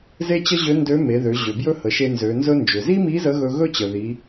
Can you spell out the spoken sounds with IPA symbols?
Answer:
ze˥t͡ɕə˥ʑø˧˥ndø˧˥ me˩˧ðø˩˧ʑø˩ bjɵ˥hə˩˧ʃe˧ nzø˩˧nzɵ˥ nd͡ʒø˩zi˥mi˧˥ zə˧˥ɣɵ˧ɣɵ˥ t͡ɕə˩ði˩˧

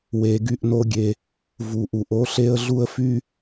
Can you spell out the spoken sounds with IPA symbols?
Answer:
we˧ɡy˦ʔno˦ɡʲe˧ | vu˨ ʔu˨ʔo˦ɬe˦ə̯ɮu˦ə̯ fy˦

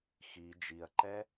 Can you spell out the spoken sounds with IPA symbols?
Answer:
xi d͡ʒiɐ̯ǃɛ

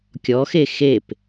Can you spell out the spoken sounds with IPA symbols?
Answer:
kʲɔxe xep

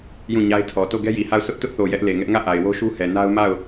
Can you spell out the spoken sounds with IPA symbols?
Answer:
jũ˦˨ɲa˦ɪ̯tʰɔ˨ to˦˨ɡɛ˦ji˨ha˦˨ʊ̯ sʊ˦ʔ tʊ˦ʔθo˨ jɛ˦ʔle˨ŋɛ˦ʔ ŋä˦˨ ʔa˨ɪ̯wo˦ʃu˦hɛ˨ na˦ʊ̯ma˦˨ʊ̯

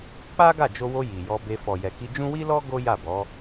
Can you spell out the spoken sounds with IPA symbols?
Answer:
k͡pa˦ ɡa˦˨d͡ʒo˧wo˧ ji˨jɔ˧be˧ fɔ˨jɛ˨ki˧d͡ʒũ˦ wi˦lɔ˦ ɡo˦ja˦˨bɔ˨˦

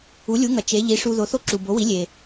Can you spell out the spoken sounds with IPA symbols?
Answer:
u˩˥lʲu˩˥ŋɐ˩ t͡ʃe˩˥ ʎi˩˥ʂu˧ ðo˩˥θo˥˩ǁu˩ bo˩˥wi˩˥ lʲe˩

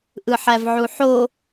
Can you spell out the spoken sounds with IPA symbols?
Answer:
ʔɯħævʕuħo

